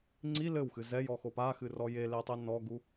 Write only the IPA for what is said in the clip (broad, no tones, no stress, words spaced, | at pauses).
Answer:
ŋ͡ǀi lɘwxɨ zɛjɔxo paxɨrɔ jeletˤe nɔɡu